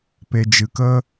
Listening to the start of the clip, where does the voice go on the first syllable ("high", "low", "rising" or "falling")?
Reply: low